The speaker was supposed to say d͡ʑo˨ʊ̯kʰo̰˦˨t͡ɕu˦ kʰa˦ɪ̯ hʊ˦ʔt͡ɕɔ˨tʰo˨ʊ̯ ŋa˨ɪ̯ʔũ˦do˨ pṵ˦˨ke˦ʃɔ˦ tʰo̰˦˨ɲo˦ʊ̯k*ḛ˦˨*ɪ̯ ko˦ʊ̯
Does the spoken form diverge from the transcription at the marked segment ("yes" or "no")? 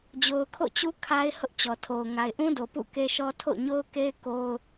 yes